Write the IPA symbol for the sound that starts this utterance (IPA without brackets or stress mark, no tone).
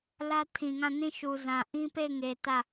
l